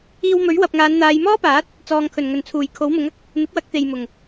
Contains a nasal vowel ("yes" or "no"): no